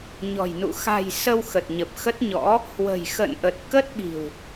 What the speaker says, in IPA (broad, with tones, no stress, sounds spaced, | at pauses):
ɲ ɔ̤˨˩ j n ṵ˧˨ x a̤˨˩ j s ə˧ w x ə˨˩ t̚ ɲ ə˨˩ p̚ x ə˦˥ t̚ ɲ ɔ̰˧˥ | h w ə̤˨˩ j x ə̰˧˨ n ʔ ə˨˩ t̚ k ə˦˥ t̚ ɓ i̤˨˩ w